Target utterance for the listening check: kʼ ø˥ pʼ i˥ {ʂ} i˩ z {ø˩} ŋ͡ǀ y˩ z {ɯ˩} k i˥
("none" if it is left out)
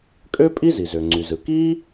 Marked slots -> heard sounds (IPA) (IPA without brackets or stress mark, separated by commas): z, ø˩, ɯ˩